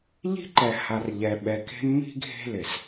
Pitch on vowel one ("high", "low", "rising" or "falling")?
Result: high